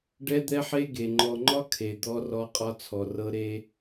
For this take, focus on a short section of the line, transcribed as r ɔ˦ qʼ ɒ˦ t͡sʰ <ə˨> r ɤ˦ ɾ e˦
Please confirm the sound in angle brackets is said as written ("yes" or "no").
no